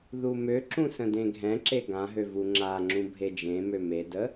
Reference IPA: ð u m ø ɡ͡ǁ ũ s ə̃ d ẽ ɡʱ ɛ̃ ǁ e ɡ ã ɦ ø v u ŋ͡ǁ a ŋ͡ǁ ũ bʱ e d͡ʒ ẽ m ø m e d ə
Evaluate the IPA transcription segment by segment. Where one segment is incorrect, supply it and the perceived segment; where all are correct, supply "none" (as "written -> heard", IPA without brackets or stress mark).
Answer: ɡ͡ǁ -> ǁ